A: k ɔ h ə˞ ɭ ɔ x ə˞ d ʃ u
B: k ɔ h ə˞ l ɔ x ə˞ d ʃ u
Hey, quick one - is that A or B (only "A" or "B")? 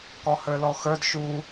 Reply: B